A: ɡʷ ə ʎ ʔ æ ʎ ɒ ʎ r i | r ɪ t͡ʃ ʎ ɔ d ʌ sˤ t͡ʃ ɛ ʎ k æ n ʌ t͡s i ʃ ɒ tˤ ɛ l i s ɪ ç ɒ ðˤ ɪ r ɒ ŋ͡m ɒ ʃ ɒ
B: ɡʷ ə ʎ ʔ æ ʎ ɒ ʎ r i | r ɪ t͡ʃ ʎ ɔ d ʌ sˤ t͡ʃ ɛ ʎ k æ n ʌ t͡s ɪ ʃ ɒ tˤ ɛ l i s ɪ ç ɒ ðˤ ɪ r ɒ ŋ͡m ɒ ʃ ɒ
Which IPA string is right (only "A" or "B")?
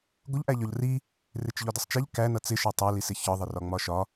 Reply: B